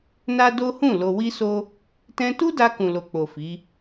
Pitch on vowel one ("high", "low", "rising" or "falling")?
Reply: high